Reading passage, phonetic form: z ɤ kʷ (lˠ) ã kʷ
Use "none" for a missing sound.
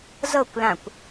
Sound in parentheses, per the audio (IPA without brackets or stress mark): l